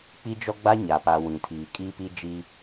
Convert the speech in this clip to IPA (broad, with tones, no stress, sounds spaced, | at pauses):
k͡p i˦ d͡ʒ ɔ˦ ɡ͡b a˦ ɲ a˨ p a˨ w ĩ˨ tʰ iː˨ kʼ iː˦ p i˦ d͡ʒ iː˦